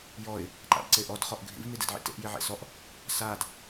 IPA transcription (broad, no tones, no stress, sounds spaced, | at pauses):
j ɔ ɪ̯ | ǃ a̰ b ǀ e ʔ ɔ d χ ɔ ʔ ɡʱ ḭ v n̪ i d ḛ d ʕ ḭ t ḛ ʔ j i ʕ ḛ s ɔ ʔ | s a d